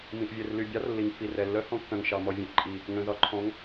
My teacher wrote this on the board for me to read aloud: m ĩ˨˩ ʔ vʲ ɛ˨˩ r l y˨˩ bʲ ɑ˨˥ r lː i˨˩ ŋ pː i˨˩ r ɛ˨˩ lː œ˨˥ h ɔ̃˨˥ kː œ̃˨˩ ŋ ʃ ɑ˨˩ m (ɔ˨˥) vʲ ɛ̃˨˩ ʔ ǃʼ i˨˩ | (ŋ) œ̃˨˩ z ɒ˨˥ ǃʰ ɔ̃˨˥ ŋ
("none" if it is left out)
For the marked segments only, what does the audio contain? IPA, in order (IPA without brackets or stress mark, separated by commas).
ɔ˨˩, ŋ